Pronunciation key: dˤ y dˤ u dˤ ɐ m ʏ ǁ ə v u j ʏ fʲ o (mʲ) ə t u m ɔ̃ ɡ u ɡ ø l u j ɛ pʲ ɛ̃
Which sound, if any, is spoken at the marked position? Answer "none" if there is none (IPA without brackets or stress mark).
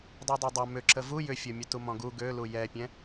mʲ